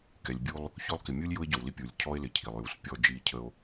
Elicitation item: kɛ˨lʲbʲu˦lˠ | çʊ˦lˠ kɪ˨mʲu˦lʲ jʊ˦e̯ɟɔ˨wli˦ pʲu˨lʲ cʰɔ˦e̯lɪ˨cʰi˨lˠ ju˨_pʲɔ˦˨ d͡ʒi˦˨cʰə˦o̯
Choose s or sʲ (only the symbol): s